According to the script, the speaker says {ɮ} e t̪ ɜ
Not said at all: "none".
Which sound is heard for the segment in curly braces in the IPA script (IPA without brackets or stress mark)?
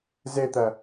z